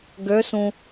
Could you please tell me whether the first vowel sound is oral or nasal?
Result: oral